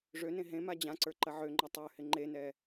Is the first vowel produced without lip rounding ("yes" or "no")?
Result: no